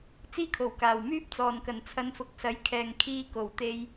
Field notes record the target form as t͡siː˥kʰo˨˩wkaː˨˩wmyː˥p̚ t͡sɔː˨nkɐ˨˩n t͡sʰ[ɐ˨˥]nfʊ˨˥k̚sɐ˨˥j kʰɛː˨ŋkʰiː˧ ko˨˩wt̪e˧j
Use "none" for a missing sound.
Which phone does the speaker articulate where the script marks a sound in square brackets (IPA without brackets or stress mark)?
ɐ˨˧